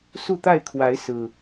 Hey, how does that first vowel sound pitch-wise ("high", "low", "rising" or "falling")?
falling